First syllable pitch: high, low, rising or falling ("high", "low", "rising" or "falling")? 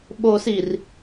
low